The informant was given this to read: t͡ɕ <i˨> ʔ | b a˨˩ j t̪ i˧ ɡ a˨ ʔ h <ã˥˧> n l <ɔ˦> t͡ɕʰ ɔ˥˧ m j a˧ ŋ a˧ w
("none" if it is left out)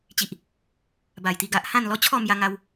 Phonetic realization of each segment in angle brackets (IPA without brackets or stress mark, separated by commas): i˨, ã˥˧, ɔ˦